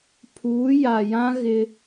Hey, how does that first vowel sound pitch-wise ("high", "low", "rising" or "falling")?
rising